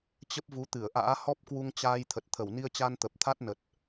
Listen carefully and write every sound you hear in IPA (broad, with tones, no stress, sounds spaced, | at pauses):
t͡ɕ ə˦˥ p̚ v u˨˦ t̪ ɨ˧˩ ə̯ ʔ a̰ː˧˥ h ɔ˦˥ p̚ k w u˧ ŋ t͡ɕ aː˧ j t̪ʰ ə˨˩ t̚ t̪ʰ ə˧˩ w n i˧ ə̯ t͡ɕ a˧ n t̪ ə˨˩ p̚ t̪ʰ a˦˥ t̚ n ə˨˩ t̚